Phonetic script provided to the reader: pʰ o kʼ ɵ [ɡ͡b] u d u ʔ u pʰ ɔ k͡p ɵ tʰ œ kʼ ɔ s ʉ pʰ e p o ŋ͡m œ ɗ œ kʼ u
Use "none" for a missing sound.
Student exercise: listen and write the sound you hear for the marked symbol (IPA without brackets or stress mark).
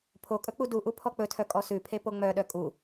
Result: k͡p